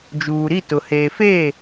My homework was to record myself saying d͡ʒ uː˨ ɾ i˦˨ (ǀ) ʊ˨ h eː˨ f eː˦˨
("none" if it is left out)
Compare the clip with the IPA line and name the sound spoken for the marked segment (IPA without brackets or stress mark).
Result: t